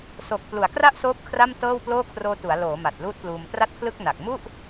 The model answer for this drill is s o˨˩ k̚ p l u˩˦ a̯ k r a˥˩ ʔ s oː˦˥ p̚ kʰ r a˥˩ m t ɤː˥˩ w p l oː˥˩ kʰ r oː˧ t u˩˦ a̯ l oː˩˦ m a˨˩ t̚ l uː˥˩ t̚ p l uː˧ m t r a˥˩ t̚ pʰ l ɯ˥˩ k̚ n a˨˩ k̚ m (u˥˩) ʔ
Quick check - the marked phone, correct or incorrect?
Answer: correct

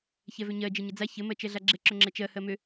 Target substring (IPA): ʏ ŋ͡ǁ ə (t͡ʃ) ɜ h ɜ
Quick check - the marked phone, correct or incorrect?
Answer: correct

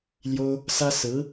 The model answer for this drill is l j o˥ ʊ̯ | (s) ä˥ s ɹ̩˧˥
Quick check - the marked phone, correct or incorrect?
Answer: correct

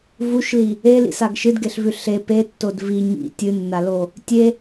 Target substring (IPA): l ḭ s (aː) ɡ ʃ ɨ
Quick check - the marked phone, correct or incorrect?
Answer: incorrect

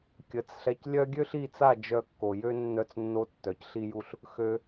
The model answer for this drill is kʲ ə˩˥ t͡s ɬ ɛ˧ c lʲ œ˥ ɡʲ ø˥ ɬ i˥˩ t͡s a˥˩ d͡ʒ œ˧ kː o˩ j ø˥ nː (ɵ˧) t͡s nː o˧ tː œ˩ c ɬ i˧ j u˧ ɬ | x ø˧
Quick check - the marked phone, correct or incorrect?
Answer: incorrect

